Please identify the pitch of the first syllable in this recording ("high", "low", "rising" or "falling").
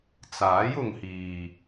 rising